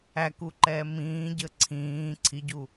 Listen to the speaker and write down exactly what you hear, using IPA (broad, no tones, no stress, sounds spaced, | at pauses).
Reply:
æ k u ǃ ɛː m ĩː ɟ ə ǀʰ ĩː ǀʰ i ɟ u